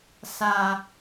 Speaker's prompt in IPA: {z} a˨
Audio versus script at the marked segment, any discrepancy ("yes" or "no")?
yes